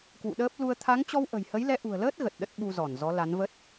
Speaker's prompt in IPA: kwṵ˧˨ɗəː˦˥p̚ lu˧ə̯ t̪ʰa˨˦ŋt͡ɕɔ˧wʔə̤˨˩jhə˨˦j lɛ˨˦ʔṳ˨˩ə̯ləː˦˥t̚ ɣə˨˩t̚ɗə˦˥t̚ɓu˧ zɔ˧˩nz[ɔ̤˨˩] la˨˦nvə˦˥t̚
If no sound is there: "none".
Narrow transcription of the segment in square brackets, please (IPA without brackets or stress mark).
ɔ˨˦